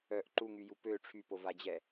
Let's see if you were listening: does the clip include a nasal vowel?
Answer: no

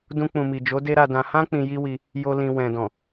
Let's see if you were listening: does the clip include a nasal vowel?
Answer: yes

